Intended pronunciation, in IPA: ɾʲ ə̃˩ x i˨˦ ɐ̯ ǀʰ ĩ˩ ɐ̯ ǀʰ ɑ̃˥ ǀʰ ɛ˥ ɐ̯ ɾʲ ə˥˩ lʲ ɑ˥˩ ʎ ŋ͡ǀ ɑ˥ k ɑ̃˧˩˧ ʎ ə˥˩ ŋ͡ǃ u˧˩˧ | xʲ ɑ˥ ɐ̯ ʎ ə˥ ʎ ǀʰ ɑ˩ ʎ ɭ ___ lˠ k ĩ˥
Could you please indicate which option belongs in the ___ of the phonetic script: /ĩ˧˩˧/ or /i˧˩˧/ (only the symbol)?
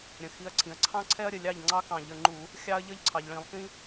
ĩ˧˩˧